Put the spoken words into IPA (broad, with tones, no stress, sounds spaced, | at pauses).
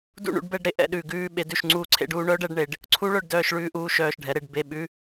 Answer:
d ṵ˦˨ ɳ ṵ˦˨ ɖ b ɛ˦˨ ɖ ɾ e˧˥ ʔ ɛ̰˦˨ ɗ ʉː˦˨ ɡ ʉː˧˥˧ ɓ e˧˥ d ʉ˦˨ ʃ ŋ͡ǀ uː˦˨ ǀʰ ḛ˧˥ ɖ uː˩˥ ɳ œ˧˥ ɖ ɛ˧˥ ɖ ɳ e˩˥ ɖ | ǀʰ u˧˥ ɭ œ˦˨ ɖ d œː˦˨ ʃ ɭ ʉː˦˨ ʔ uː˦˨ ʃ œː˦˨ ʃ ɖʱ ɛ˩˥ ɾ e˦˨ ɖ b e˧˥˧ ɓ ʉ˧˥˧